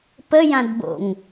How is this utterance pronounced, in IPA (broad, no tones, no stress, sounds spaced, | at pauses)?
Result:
p ə j ã d b o̰ ŋ